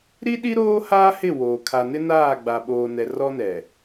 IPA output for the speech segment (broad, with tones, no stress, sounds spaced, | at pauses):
ɾ i˦ ɗ i˦ ɾ oː˦ h aː˦ h ɪ˦˨ w oː˨ kʰ a˨ n ɪ˦ n aː˦˨ ɡ͡b a˨ ɓ oː˨ n ɛ˨ r ɔ˦ n ɛ˨